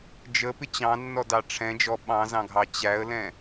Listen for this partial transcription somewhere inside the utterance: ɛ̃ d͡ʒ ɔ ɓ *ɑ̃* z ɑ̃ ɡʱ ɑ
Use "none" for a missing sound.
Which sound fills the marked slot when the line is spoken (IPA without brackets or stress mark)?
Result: ɑ̃